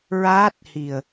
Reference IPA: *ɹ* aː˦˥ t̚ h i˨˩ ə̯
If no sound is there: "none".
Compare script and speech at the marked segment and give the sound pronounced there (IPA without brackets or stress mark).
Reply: ɹ